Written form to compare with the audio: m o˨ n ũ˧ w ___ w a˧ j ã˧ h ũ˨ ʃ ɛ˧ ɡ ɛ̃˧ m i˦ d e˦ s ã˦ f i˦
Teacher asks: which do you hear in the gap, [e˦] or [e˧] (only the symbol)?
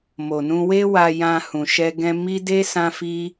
e˦